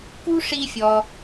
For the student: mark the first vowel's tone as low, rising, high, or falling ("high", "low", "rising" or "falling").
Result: high